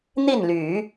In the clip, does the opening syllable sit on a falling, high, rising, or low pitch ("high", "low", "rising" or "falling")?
falling